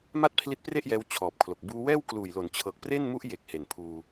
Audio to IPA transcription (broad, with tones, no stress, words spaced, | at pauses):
ma˥˩t̚pʰli˦˥t̚pre˥˩ʔjɛː˧w t͡ɕʰɔː˨˩p̚kʰlo˨˩k̚ buː˧wɛː˥˩wkluː˨˩jlo˩˦n t͡ɕʰɤː˨˩k̚pre˥˩nmu˦˥ʔ je˨˩k̚ he˨˩npʰuː˧